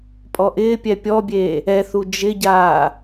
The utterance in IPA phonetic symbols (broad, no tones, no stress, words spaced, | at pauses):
pʼɔʔɪːpʲɛ pʲɔbʲeː | ɛθu d͡ʒɪɟaː